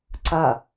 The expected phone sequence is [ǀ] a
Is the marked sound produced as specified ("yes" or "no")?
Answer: yes